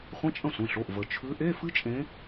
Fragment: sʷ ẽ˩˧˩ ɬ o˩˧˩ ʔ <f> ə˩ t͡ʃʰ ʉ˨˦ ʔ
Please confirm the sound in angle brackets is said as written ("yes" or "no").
no